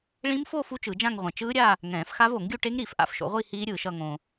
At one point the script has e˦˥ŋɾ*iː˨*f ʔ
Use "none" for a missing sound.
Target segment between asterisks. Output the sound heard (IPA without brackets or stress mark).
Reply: iː˨